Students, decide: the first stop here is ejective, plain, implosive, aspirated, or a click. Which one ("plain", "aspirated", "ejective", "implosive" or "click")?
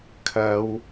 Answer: aspirated